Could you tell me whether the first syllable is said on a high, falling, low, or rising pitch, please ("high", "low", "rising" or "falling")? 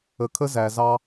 rising